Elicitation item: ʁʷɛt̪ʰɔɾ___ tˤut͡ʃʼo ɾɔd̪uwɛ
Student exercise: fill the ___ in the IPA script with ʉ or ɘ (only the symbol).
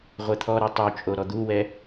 ʉ